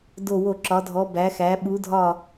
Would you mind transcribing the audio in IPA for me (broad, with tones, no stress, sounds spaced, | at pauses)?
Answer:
d o˧˩ w o˧˩ ǁ ɒ˩˧ dʱ ɔ˩˧ b æ˩˧ x æ˩˧ ɓ u˩˧ dʱ ɒ˧˩